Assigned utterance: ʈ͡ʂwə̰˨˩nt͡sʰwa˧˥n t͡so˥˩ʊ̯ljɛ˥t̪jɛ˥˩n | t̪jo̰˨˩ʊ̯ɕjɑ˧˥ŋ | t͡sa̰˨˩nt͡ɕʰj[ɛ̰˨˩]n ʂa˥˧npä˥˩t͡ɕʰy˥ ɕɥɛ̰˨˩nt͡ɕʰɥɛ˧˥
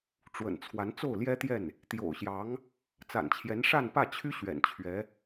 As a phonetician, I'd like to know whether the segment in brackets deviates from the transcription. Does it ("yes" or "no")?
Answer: yes